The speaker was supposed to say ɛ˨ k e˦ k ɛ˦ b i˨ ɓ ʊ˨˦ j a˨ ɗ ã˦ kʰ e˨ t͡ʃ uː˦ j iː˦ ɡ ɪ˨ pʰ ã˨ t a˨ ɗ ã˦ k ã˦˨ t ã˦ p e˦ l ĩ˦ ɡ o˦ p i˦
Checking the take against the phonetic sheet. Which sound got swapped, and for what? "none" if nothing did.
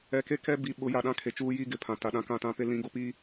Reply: none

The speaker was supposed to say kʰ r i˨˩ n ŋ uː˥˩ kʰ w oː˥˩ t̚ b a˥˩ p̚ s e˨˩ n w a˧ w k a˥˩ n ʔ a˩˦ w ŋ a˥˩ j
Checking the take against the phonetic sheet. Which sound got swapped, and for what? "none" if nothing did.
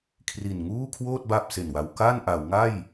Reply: none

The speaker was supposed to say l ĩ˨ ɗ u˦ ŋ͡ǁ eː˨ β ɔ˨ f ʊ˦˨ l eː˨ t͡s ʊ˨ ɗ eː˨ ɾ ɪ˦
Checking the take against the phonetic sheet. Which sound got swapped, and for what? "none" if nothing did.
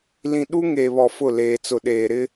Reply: ŋ͡ǁ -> ŋ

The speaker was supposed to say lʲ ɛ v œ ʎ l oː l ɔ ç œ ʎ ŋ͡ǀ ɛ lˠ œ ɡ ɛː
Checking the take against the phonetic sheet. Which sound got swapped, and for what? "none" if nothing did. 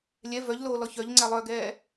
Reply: none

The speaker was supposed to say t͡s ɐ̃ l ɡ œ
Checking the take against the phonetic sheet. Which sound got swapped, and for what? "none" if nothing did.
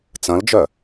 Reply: ɡ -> d͡ʒ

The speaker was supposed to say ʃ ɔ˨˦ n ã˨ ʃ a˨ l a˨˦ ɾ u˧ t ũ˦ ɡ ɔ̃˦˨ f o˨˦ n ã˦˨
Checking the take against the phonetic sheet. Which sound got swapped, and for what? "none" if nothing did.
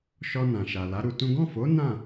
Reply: ɔ˨˦ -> ɔ˧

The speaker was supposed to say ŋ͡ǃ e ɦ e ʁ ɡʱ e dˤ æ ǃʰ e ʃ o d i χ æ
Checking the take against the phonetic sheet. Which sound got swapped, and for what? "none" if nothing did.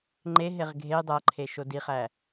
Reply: none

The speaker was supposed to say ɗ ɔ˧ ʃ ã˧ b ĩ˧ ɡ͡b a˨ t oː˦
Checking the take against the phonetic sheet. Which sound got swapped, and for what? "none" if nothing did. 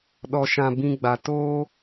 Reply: none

